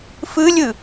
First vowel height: high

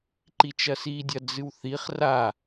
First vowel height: high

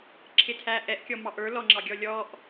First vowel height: high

